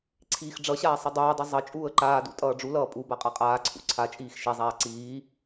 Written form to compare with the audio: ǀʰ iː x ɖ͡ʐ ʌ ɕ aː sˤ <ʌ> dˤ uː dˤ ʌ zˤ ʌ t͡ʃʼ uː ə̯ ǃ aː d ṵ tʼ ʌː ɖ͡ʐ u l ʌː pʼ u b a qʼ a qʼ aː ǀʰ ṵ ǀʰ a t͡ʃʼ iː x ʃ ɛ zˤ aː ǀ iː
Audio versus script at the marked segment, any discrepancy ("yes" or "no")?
no